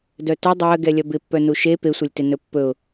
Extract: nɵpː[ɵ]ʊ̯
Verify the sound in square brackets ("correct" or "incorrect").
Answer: correct